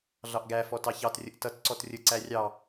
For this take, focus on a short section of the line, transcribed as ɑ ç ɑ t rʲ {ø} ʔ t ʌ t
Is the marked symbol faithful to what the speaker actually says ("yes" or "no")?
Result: no